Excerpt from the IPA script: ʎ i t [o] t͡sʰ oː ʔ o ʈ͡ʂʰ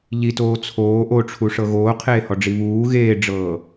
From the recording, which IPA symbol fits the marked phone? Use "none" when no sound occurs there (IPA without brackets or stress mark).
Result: oː